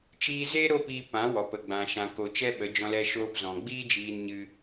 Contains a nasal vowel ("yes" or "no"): yes